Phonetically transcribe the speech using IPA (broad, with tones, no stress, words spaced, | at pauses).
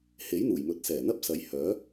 he˨˥jn̪uː˨˩j mɵ˨˥t̚sɛː˨˩n̪ɐ˥p̚sɐ˨˧j hœː˨˥